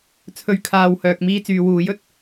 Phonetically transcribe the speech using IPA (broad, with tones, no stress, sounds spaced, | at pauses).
t͡sʰ ɵ˨ ɥ kʰ aː˨ w h œː˨ k̚ m iː˥ t͡s yː˨˧ w uː˨˥ j ɵ˨ t̚